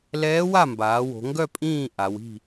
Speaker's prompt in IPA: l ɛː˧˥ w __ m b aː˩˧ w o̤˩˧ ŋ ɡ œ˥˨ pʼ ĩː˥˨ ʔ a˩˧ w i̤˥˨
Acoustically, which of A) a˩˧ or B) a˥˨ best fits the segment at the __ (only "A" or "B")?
B